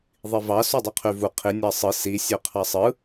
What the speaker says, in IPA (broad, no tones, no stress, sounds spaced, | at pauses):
ðˤ i v ɑ s u dˤ ɯ qʰ y v u qʰ i nʲ ɑ sˤ ɯ s i sʲ ø qʰ ɑ sˤ ɯ